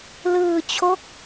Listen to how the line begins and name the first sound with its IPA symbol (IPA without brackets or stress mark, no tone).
l